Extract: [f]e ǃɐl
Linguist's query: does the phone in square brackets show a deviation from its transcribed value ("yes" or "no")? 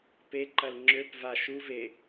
yes